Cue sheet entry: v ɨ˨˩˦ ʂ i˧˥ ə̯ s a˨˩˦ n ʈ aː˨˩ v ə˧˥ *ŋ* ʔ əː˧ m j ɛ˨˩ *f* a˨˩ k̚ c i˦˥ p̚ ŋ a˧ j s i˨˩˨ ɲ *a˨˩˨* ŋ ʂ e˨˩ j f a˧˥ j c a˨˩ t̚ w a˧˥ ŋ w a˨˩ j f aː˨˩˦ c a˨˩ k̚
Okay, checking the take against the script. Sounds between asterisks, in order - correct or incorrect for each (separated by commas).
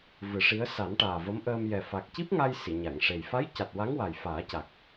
incorrect, correct, correct